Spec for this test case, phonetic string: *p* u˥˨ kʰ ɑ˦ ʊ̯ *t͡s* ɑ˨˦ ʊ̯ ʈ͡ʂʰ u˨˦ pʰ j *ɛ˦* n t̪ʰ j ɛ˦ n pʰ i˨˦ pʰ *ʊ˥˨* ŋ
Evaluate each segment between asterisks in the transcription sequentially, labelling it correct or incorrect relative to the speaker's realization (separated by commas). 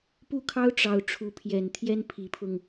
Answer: correct, incorrect, incorrect, incorrect